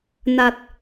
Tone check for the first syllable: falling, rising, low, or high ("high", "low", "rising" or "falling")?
low